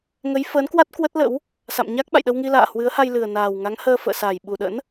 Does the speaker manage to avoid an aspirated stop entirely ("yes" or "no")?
yes